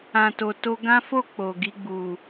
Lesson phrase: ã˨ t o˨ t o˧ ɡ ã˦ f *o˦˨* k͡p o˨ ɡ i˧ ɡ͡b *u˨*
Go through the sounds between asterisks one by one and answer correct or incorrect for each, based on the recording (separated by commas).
correct, correct